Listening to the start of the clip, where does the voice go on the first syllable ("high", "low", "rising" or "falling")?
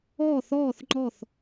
falling